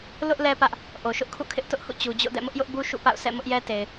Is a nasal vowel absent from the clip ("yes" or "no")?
yes